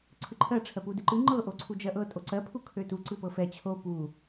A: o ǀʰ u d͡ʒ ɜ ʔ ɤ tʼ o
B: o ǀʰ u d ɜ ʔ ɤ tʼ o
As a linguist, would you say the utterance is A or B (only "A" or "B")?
A